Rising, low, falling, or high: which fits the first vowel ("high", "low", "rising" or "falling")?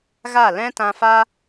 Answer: falling